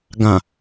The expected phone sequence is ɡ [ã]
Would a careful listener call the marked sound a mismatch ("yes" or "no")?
no